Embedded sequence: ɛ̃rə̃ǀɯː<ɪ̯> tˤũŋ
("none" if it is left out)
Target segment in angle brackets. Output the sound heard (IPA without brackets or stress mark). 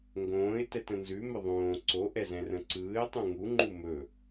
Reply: ɪ̯